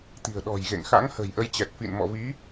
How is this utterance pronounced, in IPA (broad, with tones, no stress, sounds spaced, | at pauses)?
t̪ i̤˨˩ ə̯ ɗ ɔ̤˨˩ j ɣ ḛ˧˨ ŋ x a̰˧˥ ŋ h ə̤˨˩ j ʔ ə˨˦ j t͡ɕ ɛ˨˩ t̚ f ḭ˧˨ n m ɔ̰˧˨ v i˨˦